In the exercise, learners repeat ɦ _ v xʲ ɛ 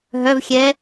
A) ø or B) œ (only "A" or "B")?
B